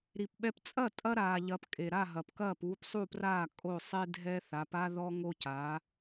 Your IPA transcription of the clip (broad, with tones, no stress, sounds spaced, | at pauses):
ɾ i˩ p ɓ ɛ˧ p t͡sʼ ɐ˥˩ tʼ ɐ˥ ɾ aː˩ ʎ ɐ˩˥ p kʼ e˩ ɾ a˥˩ ɦ ɐ˩ p k ɐː˥˩ p uː˧ p sˤ u˥˩ p r aː˥˩ kʼ o˥˩ sˤ e˥ dʱ ɛ˥ θ a˩˥ p a˥ ð ɔ˥ ŋ o˥ c aː˩˥